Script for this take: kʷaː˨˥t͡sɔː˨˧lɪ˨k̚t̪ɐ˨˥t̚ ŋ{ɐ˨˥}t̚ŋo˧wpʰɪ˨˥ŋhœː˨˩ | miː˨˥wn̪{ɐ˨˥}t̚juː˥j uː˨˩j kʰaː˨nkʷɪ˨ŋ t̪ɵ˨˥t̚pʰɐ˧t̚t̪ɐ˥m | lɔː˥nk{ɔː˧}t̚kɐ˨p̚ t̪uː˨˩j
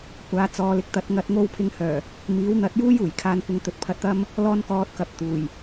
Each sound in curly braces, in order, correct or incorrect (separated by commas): correct, correct, correct